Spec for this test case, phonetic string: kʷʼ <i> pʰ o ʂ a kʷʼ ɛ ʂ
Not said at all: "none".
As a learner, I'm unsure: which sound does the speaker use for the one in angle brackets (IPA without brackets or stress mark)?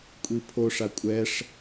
i